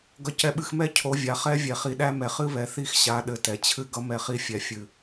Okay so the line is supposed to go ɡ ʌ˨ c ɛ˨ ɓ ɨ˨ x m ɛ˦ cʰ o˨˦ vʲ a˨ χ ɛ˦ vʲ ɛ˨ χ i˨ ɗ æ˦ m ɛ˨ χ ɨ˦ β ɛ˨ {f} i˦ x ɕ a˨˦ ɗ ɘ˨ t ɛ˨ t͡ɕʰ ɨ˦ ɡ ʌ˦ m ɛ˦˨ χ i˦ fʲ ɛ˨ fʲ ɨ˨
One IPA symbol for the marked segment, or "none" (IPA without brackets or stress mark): θ